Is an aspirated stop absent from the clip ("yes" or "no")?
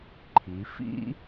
no